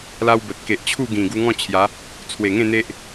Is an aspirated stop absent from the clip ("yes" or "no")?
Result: no